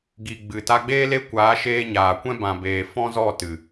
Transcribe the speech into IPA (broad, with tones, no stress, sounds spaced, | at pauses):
ɡ i˨ ɡ͡b ɨ˨ t a˧ ɡ͡b eː˦ l e˦ kʷ aː˨˦ ʃ eː˧ ɲ aː˨ kʷ ɛ̃˦ b ã˨ b eː˨ f ɔ̃˦ z ɔ˦˨ t ɨ˨